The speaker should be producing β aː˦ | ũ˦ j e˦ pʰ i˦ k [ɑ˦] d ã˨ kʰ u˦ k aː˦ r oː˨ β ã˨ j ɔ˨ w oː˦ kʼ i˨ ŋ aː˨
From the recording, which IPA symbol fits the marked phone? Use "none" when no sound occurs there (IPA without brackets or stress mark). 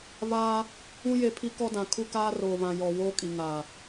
ɔ˦